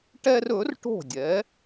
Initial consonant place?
retroflex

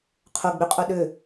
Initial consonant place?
uvular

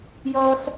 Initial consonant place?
palatal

